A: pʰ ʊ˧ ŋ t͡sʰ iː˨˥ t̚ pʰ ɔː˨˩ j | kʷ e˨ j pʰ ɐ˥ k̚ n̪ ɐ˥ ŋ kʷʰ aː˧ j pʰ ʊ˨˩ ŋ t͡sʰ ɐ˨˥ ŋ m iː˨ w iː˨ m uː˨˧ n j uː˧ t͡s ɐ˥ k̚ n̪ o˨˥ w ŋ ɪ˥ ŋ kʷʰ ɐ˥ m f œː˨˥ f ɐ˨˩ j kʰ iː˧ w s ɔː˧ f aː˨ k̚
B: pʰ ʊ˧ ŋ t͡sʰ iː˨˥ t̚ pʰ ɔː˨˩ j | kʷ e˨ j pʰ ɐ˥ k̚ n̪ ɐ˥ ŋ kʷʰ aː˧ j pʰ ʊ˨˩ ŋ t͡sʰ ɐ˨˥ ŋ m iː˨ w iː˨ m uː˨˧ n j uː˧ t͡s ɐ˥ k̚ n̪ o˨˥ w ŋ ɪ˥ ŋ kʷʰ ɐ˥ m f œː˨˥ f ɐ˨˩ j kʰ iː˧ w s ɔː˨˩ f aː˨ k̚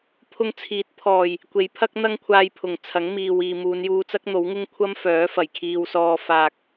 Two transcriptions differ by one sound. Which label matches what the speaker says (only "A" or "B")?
A